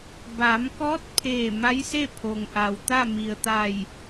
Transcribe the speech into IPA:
ba˩˧mkɔː˧˥t̚pʰeː˧˩ ma˧˥jse˥˨ pʰo˩ŋʔa˩wt̪a˥˨ mi˩ə̯t̪a˧˩j

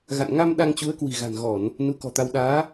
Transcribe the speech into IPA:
ɣa̰˧˨nŋa˧m ɗa˧ŋt͡ɕu˨˦ə̯kwi̤˨˩ɣa̤˨˩n ɣɔ˧˩˨n | nu˨˦kɔ̤˨˩t̪a˧w ɗaː˨˦

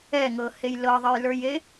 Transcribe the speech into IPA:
ɛŋɤhej lɤðˤɜjlə˞je

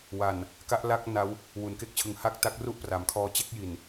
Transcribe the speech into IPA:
wa˨˩n | ka˦˥ʔla˥˩k̚na˦˥w | wu˩˦nke˦˥k̚t͡ɕʰɯ˨˩ŋ ha˥˩k̚ta˦˥k̚ru˥˩ʔ pra˩˦mkʰɔː˧ t͡ɕe˥˩k̚ji˨˩n

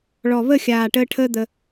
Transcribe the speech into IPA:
ɭɔ˨˩βə˥˨xʲaː˨˩ʈəː˧ ʈʰəː˥d̪ə˧

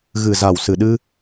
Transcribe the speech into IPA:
ɣɨ˨˩za˨˩wsɨ˨˩ɗɨ˧

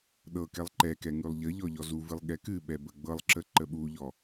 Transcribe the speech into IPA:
ɗɤ kɛlˠǃɛkɛ ŋʉlˠʎəʎɔ ʎɔzuvɨlˠ ɠɛkɨɓɛ bəɡ͡bɤlˠǁə ǃəɓuʎɔ

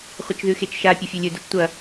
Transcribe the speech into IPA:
χʷɐt͡ʃðʉxet͡ʃʃa pʲɵfʲɵlʲɵ dɵt͡ʃtʷɐ

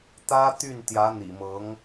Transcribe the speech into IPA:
t̪ä˥ t̪y˥˩nt̪jä˧˥ n̪ḭ˨˩mɤ˧˥ŋ

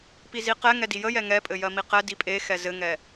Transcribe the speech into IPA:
piziqɛŋɛ dijəjɛ ŋɛpʼɘ jɜmiqɛdi pʼe xɛzɘŋɛ

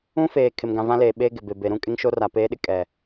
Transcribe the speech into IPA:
ũ˦feː˨ kʰɪ˨mɡã˨vã˦leː˨ ɓeː˦ɡɪ˨ be˨be˨ɾũ˦kʼɪ˦ŋ ʃo˦ra˨peː˦ɗɪ˦ kʼɛ˨

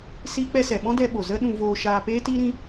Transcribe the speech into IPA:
siː˦k͡pɛ˦sɛ˨ ɓɔ̃˦dɛ˧ɓo˨ zə˦ ɗũ˧voː˧ʃaː˧ peː˦tiː˦ɾĩ˦

